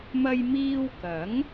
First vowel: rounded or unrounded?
unrounded